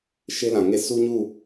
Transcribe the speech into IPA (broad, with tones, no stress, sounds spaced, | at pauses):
ʃ e˦ l ã˨ ŋ e˦˨ s u˦ ɲ u˦˨